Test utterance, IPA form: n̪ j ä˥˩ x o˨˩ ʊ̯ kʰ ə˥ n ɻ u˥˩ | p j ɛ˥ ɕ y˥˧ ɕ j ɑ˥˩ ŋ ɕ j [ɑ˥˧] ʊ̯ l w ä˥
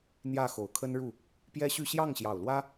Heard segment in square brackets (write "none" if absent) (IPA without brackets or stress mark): ɑ˨˩